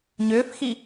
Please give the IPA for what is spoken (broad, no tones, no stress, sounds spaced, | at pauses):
ɲ ʏː f x i